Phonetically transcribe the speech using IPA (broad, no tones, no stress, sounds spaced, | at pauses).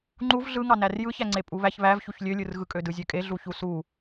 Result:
ŋ͡ǃ u v ɮ ɯ ŋ ɑ n æ r j ɯ ç æ ŋ͡ǀ e pʼ u β æ ç β æ v ç u ç lʲ ø lʲ ɯ r ɣ ɯ kʼ ø d ɯ zʲ ø kʼ e ɮ u ç u s u